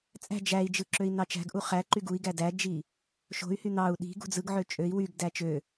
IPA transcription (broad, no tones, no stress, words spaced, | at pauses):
t͡sʼæ̤ d͡ʒæi̯d͡ʒɯ ǁøi̯nɑt͡ʃæ̤ɡʔu χæ ǃyɡui̯ɡæ dæd͡ʒi | ʃo̤y̯hy n̪ɑu̯ ɗi̤ ɡṳd͡zɯɡʕø t͡ʃʼøi̯ wyɡdæ t͡ʃø